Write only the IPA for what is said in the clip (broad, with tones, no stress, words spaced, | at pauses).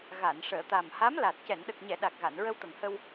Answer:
ɣa˨˩˨n ʂəː˨˩˨t̪a˨˩mha˧˥mla˨˩t̚ cɛ˨˩˨nɗə˨˩k̚ɲɛ˨˩˨ ɗa˨˩k̚ɣa˨˩˨n ɹə˧wt̪ə˨˩ŋhə˧w